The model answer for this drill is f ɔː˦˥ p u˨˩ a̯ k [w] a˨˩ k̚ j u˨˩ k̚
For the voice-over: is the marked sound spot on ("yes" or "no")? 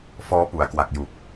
yes